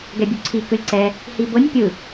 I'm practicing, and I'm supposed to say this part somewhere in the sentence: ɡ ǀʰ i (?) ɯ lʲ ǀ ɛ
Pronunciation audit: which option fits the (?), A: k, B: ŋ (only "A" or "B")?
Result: A